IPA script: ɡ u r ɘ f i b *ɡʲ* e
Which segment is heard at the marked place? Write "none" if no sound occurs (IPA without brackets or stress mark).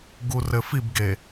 ɡ